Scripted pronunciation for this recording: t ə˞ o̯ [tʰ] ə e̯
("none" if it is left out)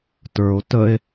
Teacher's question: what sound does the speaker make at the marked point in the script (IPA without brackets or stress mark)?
t